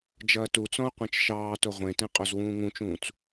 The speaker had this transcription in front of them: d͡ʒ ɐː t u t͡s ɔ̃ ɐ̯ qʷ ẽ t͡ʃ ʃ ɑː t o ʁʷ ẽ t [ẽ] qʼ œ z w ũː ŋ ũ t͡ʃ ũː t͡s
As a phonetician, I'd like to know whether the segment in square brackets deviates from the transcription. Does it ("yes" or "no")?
no